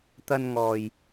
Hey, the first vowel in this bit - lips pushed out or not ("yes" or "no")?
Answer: no